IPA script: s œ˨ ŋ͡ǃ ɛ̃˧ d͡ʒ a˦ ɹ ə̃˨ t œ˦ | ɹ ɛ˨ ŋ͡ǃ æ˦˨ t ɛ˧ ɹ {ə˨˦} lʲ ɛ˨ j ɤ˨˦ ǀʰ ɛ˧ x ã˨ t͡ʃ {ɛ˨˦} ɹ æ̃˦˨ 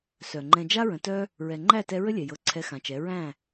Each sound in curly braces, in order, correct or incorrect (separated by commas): incorrect, correct